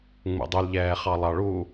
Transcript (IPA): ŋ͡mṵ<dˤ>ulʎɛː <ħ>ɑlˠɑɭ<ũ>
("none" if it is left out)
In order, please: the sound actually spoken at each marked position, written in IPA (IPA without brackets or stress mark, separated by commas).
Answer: dˤ, χ, u